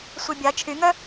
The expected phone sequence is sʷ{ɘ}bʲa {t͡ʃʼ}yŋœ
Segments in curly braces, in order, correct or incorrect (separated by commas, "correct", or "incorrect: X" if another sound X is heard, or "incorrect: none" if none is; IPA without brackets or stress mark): incorrect: ɛ, incorrect: t͡ʃʰ